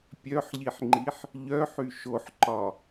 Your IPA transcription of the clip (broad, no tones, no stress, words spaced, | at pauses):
pʲœħʎiħŋ͡ǃiħ | ʎœħy ʃoħǃɒ